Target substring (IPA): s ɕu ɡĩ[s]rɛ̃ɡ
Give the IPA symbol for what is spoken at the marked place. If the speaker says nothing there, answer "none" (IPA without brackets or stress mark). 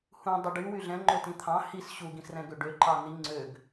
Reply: s